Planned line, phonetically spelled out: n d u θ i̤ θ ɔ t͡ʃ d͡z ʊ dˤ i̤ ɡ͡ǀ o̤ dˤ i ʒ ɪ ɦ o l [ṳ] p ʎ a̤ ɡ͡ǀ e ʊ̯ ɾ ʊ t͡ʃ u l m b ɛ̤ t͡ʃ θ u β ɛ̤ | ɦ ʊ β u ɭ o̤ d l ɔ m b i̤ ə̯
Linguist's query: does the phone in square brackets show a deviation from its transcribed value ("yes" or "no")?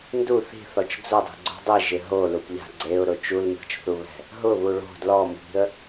yes